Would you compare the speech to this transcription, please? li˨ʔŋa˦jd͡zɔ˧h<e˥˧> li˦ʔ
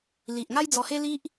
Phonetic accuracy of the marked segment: incorrect: e˦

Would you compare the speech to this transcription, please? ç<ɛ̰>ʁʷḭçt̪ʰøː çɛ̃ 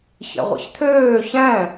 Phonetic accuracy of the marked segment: correct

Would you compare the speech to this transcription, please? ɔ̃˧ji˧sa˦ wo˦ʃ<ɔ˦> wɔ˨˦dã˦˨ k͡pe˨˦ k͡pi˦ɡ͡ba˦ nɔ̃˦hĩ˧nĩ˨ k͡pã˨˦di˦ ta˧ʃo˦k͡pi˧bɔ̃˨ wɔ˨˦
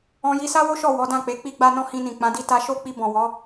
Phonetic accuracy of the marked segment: incorrect: ɔ˦˨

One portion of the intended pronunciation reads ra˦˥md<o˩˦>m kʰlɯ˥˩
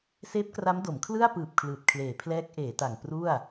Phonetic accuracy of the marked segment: correct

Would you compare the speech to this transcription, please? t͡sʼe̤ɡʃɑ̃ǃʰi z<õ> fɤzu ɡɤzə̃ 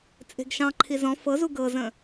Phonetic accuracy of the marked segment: incorrect: ɔ̃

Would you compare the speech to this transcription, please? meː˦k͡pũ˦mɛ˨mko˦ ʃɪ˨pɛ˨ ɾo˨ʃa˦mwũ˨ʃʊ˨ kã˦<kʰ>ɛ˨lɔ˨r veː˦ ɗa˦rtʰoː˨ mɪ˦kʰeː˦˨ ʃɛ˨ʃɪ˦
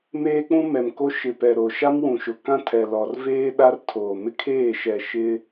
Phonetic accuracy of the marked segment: incorrect: tʰ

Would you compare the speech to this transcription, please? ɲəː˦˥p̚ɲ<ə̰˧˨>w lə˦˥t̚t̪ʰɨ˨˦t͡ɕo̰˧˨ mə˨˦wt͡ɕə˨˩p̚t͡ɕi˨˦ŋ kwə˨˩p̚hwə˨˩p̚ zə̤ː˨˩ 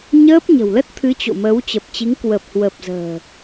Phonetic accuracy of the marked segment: incorrect: ə̤˨˩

